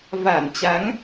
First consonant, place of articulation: labial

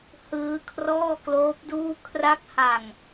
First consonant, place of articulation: glottal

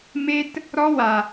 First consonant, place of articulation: labial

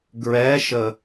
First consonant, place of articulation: velar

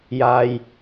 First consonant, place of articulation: palatal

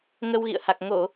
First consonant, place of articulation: velar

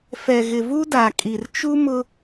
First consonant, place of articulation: labial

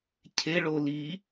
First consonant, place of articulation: palatal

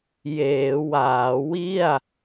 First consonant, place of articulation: palatal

